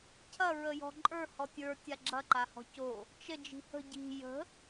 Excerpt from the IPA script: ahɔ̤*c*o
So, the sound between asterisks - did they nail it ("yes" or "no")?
yes